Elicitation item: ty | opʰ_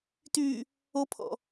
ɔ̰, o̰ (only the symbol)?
ɔ̰